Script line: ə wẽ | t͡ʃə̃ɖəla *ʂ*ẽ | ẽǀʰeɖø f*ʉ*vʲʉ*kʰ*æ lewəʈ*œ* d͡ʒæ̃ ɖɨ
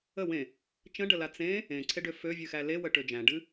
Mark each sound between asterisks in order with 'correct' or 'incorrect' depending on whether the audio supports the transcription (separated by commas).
incorrect, incorrect, incorrect, incorrect